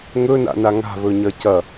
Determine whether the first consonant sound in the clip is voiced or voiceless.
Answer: voiced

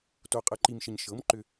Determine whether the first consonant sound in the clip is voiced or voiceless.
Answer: voiceless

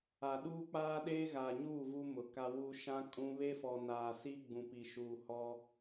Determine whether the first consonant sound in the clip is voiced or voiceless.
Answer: voiced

